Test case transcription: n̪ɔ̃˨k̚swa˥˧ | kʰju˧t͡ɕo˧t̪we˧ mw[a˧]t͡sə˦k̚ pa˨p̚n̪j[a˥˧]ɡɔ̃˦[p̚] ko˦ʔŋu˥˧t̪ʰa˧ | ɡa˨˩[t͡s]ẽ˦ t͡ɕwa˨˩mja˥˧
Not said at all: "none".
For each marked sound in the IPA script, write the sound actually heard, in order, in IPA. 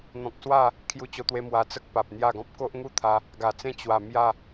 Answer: a˧, a˥˧, p̚, t͡s

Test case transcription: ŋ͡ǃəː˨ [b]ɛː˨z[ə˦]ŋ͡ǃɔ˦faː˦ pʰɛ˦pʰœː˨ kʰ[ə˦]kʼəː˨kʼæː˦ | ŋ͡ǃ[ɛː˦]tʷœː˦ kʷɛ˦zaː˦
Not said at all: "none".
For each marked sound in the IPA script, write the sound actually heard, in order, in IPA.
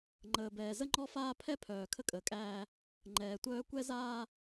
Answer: b, ə˦, ə˦, ɛː˨

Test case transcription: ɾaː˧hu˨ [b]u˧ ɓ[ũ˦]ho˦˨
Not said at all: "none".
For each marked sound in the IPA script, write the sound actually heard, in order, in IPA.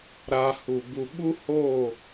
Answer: b, u˦

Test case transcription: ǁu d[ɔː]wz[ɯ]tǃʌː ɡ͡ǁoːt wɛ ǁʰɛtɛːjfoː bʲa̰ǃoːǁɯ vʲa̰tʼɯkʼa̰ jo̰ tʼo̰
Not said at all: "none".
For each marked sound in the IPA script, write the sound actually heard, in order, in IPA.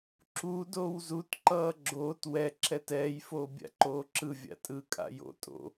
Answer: oː, u

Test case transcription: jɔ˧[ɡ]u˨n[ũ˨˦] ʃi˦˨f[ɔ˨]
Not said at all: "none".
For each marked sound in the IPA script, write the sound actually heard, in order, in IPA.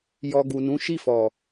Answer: ɡ, ũ˨˦, ɔ˨

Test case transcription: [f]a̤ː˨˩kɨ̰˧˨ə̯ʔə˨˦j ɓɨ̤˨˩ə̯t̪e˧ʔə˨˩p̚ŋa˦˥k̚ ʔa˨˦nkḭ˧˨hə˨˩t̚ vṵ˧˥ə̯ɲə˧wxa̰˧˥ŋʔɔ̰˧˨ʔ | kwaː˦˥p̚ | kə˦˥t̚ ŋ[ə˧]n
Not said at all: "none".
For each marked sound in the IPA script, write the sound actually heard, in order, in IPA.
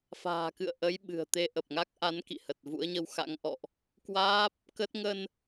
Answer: f, ə˧

